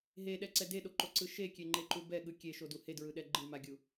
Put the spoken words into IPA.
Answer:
ɦ e ɗ ɛ ǀ ɛ d e ɗ o ǃ o ǀ ɯ ʃ e kʲ e ŋ͡ǃ e ǃ u b ɛ ɠ ɯ kʲ e ʃ o d u h e d ɹ ɯ ɗ ɛ ɡ͡ǃ ɯ m a ɡʲ u

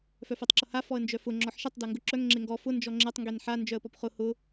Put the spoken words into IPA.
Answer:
f œ f e tˤ ǁ ʊ h a f ɔ ə̯ n d͡ʒ œ f ʊ ŋ͡ǁ ɔ ħ ʃ e tˤ d a ŋ ɡ ʊ ǁ œ ŋ ŋ͡ǁ e ŋ ɡ ɔ f ʊ n d͡ʒ ɔ ŋ͡ǁ e tˤ ŋ ɡ e n ħ a n d͡ʒ œ ə̯ p ɔ p χ ʊ h ʊ

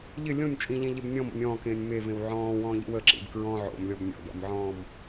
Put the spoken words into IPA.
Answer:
ʎ ɪ lʲ õ nʲ t͡ʃʼ ĩ ʎ ẽ ʎ e b nʲ ɔ̃ m o̰ nʲ ɔ̃ː k ẽː nʲ m e v ẽ w ʕ ɔ̃ː w ɔ̃ː ʎ ḭ w ə ǁ ḭ b k ɹ ɔ̃ ʕ o̰ m lʲ ɔ b nʲ ɔ̰ d ɔ̰ m ʕ ɔ̃ː m

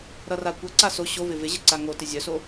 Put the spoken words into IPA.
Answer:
ɾ ʌ r a kʷ ʌ ǀ a s o ɕ o v ɪ v ɪ ʑ ɪ ǀ a ŋ o t ɪ zʲ œ s o

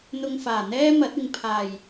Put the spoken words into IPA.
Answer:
n̪ ʊ˧ ŋ f aː˨˩ n̪ ɛː˥ m ɐ˨˥ t̚ ɪ˨ ŋ pʰ aː˨˩ j

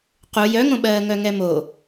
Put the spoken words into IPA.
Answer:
q u j œ ŋ õ ɓ ɜː ŋ œ ŋ ɛ m o

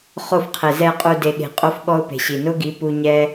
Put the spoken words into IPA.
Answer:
χ o˦˨ f qʰ e˨ z ɛ˨ qʼ u˨ d e˨ ɠ e̤˨ qʼ o˦ f ɠ ɔ˦ ʊ̯ p e̤˨ ɕ i˨ n ʊ˦ ɡ i˨˦ p u˦ ɲ ɛ˦

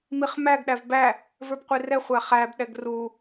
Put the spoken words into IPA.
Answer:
m i χ m æ ɡ ɗ æ v b æ | v ə˞ b qʷ i r ɛ χʷ æ χ æ b ɗ ɛ ɡ r u

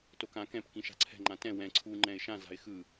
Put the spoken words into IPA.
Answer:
t o k ã k ɛ̃ p k ĩ ʃ a̤ ǀʰ ɛ̤ ŋ͡ǃ ã t ɛ̃ w ɛ̃ ǀʰ u ŋ͡ǃ ɛ̃ ɪ̯ ʃ ã z a̤ ɪ̯ x ɯ

